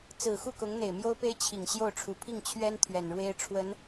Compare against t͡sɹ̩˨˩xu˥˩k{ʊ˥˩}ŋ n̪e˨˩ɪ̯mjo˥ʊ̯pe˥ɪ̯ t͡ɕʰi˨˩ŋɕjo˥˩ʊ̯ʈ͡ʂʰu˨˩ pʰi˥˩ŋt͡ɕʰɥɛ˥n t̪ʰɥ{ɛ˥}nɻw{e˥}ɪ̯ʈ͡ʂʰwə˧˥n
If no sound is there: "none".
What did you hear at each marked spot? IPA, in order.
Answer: ʊ˧˥, ɛ˨˩, e˥

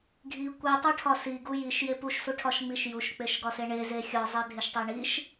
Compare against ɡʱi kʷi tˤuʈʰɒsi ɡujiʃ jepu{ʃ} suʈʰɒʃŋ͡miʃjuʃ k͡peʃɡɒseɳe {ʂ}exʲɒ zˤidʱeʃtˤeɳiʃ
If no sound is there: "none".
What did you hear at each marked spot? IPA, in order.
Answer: ʃ, z

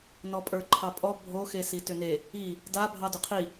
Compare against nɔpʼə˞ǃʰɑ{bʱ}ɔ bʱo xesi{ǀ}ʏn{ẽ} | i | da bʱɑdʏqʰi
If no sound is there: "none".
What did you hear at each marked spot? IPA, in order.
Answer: pʼ, t, e

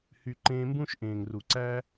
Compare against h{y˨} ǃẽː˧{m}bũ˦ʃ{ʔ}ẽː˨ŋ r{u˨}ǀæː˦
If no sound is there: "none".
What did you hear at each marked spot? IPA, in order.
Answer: y˧, m, ʔ, u˨

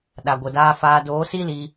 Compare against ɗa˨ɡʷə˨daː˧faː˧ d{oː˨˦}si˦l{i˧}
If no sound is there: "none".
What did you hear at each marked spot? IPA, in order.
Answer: oː˨˦, i˧

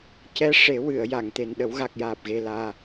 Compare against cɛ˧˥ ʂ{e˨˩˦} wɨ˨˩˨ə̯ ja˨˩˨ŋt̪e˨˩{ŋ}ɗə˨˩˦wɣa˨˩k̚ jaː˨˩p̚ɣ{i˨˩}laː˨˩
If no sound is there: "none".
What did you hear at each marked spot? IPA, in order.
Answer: e˨˩˦, n, e˨˩

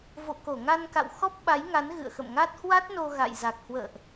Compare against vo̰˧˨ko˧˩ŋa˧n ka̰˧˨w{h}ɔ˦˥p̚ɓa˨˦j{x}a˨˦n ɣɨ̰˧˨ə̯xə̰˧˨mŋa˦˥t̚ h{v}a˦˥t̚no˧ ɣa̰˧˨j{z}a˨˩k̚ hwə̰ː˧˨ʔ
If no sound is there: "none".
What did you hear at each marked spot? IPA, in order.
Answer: x, ŋ, w, z

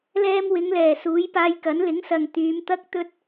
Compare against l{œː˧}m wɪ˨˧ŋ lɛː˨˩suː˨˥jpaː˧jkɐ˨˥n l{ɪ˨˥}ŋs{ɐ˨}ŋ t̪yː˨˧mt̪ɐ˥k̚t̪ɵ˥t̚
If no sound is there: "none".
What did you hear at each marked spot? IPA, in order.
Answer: ɛː˧, ɪ˨˥, ɐ˨

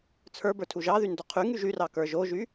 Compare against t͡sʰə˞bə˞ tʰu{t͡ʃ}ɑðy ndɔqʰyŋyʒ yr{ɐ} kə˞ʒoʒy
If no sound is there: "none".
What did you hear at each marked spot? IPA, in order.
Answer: ʒ, ɑ

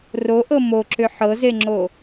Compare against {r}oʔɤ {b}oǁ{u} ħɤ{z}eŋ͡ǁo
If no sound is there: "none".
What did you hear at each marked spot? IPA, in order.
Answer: r, m, ʏ, z

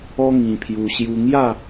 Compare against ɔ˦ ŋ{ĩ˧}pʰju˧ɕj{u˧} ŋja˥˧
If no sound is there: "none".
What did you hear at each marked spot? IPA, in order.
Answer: ĩ˧, u˦

